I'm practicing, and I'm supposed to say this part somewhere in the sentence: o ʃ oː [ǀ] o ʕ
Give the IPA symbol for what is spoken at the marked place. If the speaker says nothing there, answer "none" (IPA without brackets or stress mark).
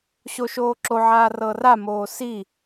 ǁ